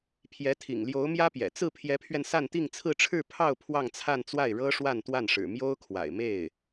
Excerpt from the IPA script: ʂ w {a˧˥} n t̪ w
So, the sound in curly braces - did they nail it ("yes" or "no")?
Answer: no